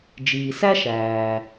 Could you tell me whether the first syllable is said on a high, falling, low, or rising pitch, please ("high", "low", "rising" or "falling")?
low